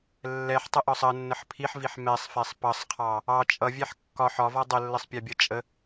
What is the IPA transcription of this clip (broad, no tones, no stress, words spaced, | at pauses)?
lːɛħtˤəʔɒsˤ ənːəħ pʰiħviħ mɛsˤfɛsˤ pʌsˤqʰɑ | ɑ t͡ʃʼʌvʲɛħ kːɒħ ɒvɒ dˤəlːəsˤpʲɑbʲʌ t͡ʃʼə